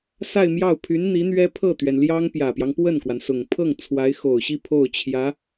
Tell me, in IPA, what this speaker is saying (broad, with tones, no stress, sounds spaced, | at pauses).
s a˥˧ ɪ̯ m j ɑ˥˩ ʊ̯ pʰ y˧˥ n n̪ i˧˥ n̪ ɥ ɛ˥ pʰ ɤ˥˩ t̪ ɥ ɛ˩ n l j ɑ˥ ŋ p j ä˨˩ p j ɑ˦ ŋ p w ə˥˩ n k w a˩ n s ʊ˨˩ ŋ pʰ ɤ˥˩ ŋ t͡sʰ w a˧˥ ɪ̯ x o˨˩ ʊ̯ ɕ i˥˧ pʰ o˥˩ ʊ̯ t͡ɕʰ j ä˧˥